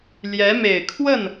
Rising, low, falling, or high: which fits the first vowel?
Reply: rising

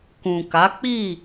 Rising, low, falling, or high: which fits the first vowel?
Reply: low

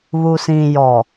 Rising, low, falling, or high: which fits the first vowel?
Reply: low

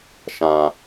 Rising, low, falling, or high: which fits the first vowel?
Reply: low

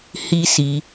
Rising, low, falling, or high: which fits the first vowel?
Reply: high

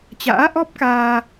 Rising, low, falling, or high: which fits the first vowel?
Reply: rising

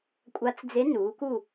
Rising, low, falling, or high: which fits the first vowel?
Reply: rising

